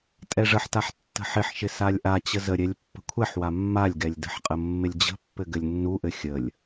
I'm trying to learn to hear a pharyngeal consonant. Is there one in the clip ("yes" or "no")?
yes